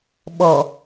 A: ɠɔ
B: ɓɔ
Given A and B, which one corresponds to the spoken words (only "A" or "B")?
B